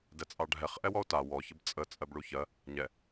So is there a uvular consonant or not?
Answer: yes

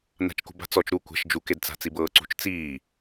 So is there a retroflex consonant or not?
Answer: no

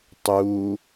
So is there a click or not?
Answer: no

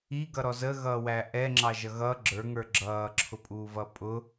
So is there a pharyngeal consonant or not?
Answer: no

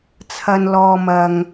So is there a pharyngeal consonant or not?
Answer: no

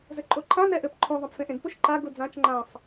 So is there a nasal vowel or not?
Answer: yes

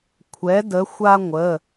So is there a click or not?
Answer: no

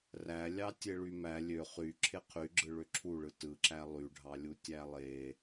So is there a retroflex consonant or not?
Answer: yes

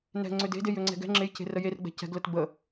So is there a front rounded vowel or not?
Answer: yes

